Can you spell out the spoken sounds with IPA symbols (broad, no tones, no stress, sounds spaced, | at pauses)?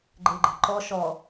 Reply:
ɡ͡ǃ e ɡ͡ǃ ɛ̤ ǃ ɔ ʃ ɔ